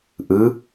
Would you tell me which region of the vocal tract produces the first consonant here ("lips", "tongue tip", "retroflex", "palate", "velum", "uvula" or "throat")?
throat